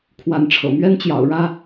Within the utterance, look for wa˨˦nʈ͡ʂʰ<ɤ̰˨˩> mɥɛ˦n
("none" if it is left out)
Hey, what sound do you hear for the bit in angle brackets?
ɤ̰˨˩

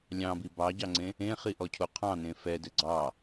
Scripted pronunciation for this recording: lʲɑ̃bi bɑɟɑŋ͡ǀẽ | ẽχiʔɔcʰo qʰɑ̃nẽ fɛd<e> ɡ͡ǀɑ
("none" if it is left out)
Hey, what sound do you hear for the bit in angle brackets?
ɘ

